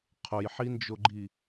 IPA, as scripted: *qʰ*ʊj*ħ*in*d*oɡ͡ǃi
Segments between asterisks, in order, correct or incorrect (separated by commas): correct, correct, incorrect